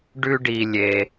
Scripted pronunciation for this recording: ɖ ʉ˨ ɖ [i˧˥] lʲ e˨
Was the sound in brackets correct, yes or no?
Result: no